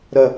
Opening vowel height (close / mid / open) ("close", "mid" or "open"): open